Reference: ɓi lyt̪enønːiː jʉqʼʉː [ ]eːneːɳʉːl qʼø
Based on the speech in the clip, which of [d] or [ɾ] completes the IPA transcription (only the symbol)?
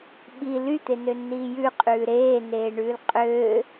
ɾ